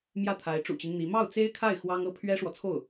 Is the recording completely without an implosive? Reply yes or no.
yes